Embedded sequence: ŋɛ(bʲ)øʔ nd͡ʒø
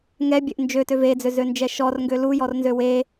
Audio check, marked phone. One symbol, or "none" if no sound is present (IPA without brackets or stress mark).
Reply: bʲ